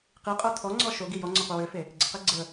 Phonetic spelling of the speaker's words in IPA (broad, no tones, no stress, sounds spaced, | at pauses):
q i qʼ o tʰ ɔ ŋ͡ǀ ɔ ʃ o ɡ i j ɔ ŋ͡ǀ ɔ qʷ ə w ø f e | ɡ͡ǀ ə q e ɡ͡ǀ ə